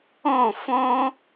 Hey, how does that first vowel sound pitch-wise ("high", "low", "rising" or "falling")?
falling